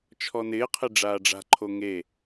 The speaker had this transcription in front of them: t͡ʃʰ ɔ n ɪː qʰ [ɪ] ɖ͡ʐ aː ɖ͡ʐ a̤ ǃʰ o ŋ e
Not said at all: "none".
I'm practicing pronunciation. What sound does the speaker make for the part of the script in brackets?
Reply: ɪ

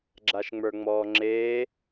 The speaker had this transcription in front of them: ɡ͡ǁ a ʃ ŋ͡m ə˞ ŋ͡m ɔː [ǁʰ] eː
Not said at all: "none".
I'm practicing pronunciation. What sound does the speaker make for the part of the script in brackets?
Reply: ŋ͡ǁ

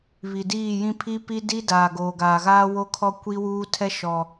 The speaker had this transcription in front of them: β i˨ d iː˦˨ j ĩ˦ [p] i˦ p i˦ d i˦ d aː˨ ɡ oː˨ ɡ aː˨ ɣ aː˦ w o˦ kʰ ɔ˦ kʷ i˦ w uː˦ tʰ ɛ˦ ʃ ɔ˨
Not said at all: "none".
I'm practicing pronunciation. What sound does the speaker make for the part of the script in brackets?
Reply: pʰ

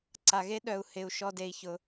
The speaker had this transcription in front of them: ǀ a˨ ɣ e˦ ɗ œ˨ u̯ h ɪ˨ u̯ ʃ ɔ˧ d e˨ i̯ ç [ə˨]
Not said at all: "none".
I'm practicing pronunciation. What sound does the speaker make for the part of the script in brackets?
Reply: ʊ˨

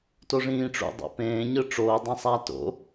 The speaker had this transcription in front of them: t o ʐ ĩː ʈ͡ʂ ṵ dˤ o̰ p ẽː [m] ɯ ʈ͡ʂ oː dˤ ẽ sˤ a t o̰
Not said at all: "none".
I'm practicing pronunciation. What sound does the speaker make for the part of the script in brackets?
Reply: ɲ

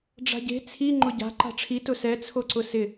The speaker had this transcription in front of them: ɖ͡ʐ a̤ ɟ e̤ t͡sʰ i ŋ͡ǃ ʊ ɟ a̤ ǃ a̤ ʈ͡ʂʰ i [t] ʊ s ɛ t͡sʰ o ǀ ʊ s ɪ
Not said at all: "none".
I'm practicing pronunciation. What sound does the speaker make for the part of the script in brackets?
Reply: t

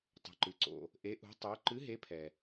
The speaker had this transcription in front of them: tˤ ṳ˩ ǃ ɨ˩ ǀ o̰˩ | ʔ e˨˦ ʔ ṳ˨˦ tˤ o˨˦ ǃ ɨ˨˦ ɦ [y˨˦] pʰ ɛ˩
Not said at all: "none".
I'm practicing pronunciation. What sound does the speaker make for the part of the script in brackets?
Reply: e˨˦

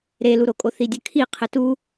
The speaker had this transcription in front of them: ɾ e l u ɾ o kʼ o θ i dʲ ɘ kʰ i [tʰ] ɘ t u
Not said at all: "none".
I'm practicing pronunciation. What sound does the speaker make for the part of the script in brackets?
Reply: qʰ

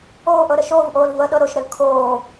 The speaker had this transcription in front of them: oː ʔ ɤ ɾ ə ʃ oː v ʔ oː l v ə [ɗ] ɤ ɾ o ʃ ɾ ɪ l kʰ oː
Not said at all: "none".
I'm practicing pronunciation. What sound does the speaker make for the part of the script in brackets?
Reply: ɗ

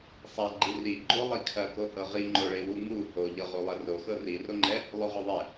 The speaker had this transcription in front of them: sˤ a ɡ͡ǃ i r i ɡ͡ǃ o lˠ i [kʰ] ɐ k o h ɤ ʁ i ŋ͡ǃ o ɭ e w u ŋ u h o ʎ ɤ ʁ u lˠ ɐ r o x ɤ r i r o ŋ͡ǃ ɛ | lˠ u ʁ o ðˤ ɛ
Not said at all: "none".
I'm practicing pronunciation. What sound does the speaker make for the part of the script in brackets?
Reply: kʰ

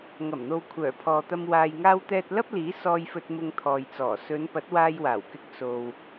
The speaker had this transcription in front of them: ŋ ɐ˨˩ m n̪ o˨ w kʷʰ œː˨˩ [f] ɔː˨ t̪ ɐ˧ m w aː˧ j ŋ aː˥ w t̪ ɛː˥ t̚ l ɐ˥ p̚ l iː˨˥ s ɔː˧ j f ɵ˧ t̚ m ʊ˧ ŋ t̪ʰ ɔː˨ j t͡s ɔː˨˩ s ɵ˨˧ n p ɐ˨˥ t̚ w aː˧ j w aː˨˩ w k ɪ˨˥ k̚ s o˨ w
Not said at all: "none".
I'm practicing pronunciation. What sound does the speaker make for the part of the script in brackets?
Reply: pʰ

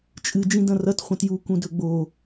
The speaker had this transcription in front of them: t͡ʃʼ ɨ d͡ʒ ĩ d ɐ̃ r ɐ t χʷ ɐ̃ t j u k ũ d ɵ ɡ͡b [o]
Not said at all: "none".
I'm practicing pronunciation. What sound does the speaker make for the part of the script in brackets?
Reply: o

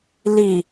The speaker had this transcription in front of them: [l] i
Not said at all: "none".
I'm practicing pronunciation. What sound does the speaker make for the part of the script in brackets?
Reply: l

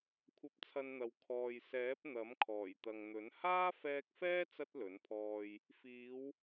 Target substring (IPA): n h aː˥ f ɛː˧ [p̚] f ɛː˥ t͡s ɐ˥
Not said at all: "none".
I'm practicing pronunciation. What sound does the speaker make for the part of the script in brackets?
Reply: k̚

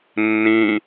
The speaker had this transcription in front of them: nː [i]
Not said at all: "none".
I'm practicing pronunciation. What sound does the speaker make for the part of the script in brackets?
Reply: ĩ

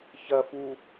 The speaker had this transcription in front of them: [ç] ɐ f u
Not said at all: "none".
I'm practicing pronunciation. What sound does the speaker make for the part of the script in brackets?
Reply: ç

